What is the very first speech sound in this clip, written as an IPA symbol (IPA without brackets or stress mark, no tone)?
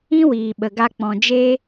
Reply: ĩ